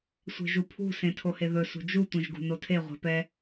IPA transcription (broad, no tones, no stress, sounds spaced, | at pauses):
sʷ e̤ ʒ u pʰ ṳ s ẽ tʰ o h e ð ɵ s ṳ d͡ʒ u tʷ ɛ̃ ʒ ɡ ṳ n o tʰ e ʁʷ ɛ̤ p ɛ